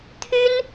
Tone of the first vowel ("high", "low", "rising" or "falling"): high